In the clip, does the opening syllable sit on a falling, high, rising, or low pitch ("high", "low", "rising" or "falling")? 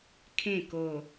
falling